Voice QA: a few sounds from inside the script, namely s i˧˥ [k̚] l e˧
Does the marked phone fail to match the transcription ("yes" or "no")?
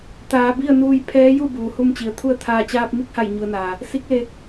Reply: no